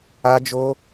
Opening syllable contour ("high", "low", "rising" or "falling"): high